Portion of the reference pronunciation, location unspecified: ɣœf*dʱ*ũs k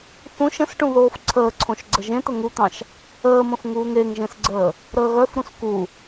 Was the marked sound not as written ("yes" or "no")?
yes